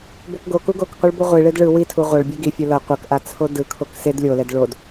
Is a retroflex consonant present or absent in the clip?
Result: present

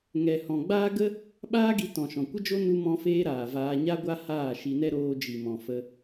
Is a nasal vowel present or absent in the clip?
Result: present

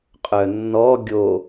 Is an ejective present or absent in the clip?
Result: present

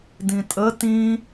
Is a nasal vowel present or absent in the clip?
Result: present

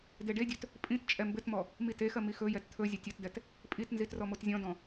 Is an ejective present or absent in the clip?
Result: present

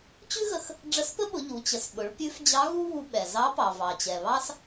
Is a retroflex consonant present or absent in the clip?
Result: present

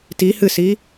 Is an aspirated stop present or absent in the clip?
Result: absent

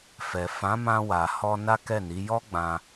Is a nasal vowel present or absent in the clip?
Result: present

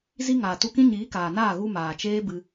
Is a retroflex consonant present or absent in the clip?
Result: absent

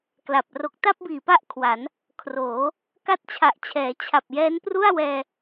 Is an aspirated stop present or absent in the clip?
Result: present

